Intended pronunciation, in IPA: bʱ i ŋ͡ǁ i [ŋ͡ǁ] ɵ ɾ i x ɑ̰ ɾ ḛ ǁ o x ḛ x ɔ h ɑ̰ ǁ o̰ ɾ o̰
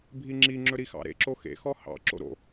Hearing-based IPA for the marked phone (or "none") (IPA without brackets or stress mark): ŋ͡ǁ